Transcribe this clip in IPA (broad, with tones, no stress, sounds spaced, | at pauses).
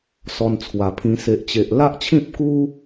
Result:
s ɔ˧ n t͡sʰ w a˨˩ pʰ ĩ˧ s e˨ ʔ t͡ɕ e˨ ʔ l a˦ ʔ t͡ɕʰ ĩ˦ p̚ k u˦